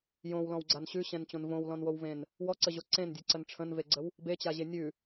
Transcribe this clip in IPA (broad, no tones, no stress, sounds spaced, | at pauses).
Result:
j õ w l ɔ̃ w ɡ͡ǀ a n ɕ ʉ ɕ ɛ̃ n t͡ɕ õ n v õ w l ɔ̃ n w o w v ẽ n | w ɔ ǀ ə ʑ o ǀ ẽ n dʲ e ǀ ə n ʈ͡ʂʰ ə̃ n v e ɡ͡ǀ ə w | b e t͡ɕ a ʑ e nʲ ʉ